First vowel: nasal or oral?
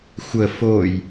oral